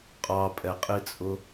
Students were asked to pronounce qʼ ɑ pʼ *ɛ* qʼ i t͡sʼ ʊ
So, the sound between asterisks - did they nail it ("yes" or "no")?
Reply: yes